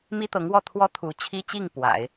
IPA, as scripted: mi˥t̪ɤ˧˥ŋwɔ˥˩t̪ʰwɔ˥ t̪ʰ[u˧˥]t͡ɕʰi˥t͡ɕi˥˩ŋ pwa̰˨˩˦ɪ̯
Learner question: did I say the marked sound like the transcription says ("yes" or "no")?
yes